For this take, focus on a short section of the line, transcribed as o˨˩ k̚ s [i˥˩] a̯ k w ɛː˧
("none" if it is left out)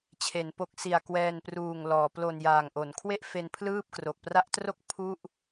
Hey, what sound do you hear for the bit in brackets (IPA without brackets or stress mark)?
i˨˩